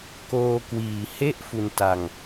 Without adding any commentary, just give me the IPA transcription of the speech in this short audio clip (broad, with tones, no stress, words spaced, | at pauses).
koː˧kwiː˨˩he˥˩ʔ fu˧nta˧ŋ